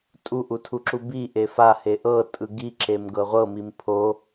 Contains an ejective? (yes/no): yes